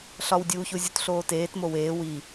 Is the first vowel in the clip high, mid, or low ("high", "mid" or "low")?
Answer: low